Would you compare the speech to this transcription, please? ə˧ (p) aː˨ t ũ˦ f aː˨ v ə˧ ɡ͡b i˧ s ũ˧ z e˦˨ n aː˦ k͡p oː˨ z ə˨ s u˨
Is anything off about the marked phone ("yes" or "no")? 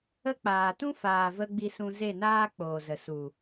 yes